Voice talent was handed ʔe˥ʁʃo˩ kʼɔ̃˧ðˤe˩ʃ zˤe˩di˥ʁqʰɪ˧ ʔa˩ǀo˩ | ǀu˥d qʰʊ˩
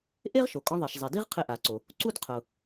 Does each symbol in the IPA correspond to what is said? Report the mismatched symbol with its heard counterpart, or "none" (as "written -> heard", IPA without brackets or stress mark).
none